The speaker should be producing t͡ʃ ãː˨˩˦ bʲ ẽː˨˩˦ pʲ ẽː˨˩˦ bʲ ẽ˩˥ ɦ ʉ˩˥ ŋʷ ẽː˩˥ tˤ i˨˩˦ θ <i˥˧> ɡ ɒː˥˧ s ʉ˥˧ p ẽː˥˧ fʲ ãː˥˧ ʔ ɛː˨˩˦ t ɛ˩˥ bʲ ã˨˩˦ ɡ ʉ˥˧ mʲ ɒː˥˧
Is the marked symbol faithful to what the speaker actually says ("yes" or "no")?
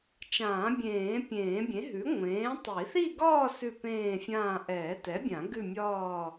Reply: yes